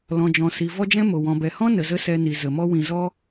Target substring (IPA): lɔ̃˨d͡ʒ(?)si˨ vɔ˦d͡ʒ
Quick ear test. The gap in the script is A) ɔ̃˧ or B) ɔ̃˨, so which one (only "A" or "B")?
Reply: B